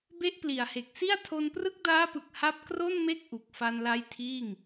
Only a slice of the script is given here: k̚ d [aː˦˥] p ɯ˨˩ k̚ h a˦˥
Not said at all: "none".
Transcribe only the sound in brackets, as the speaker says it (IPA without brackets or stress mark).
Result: aː˦˥